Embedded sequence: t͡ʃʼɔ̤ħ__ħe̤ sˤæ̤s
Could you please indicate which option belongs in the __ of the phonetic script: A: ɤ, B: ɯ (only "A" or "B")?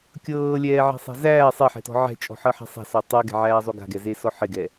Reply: A